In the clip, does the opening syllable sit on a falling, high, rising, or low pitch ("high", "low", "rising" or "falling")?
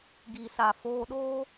low